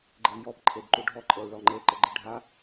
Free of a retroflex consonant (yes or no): no